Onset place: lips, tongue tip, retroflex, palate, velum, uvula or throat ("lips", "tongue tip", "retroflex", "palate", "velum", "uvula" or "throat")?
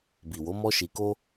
lips